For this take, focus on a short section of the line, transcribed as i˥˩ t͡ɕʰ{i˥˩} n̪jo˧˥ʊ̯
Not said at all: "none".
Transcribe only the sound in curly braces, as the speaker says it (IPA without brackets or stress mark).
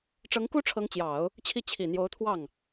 i˨˩